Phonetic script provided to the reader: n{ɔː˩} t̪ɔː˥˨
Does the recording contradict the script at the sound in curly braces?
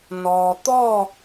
no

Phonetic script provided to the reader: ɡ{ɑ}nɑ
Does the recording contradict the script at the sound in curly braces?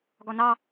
yes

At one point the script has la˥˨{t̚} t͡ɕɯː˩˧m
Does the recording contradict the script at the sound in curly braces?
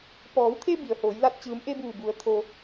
no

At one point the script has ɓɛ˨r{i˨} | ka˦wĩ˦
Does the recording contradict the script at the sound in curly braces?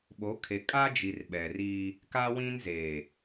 yes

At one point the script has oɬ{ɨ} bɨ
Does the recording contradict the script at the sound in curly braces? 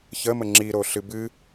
no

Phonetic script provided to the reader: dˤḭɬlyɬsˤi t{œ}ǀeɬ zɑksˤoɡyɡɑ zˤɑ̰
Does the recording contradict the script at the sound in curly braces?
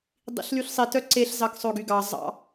no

